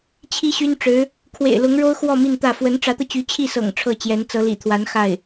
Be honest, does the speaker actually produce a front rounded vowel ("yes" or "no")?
yes